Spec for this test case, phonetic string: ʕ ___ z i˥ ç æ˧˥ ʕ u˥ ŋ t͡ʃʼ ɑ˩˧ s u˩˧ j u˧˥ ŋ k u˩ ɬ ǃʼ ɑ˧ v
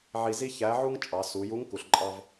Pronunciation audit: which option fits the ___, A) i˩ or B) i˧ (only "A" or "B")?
B